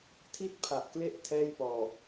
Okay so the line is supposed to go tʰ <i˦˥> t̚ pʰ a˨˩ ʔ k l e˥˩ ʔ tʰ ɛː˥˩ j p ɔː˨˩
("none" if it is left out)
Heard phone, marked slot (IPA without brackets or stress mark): i˥˩